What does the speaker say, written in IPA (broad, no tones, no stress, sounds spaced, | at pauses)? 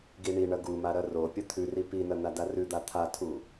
ɡ i ɳ i ɳ ɐ ɡ u m a ɾ ɐ r o pʲ ɐ t̪ʰ ʉ r i p i n ɐ n a d a r ʉ d̪ a t̪ʰ a tʰ u